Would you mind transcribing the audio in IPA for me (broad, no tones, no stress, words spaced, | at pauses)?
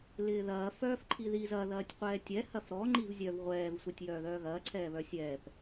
lɪːðɐː fœːfǃʰiðiz ɐ ðɐːtʲqʷɛːtʲɛ hɐfɾɔ ŋ͡ǃivzʲœv ʁʷɛːv sʷɛtʲjœːðœːɣɐː ǀʰɛːβœsʲɛːp